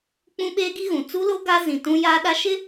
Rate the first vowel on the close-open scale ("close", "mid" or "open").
close